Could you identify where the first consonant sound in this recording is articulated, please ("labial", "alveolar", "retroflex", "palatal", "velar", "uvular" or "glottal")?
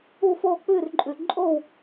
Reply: labial